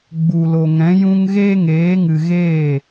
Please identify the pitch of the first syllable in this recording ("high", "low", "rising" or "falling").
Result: low